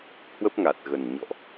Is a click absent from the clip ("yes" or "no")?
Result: yes